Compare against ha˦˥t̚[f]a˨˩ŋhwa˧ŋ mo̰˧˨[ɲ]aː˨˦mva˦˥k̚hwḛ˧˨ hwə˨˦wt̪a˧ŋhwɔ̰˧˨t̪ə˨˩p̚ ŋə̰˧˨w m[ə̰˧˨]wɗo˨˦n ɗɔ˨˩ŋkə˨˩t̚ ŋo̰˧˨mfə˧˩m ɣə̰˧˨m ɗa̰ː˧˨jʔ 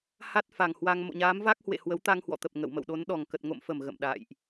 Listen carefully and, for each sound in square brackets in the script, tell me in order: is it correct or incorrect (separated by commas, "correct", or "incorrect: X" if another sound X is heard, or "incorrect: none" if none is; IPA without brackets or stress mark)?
correct, correct, correct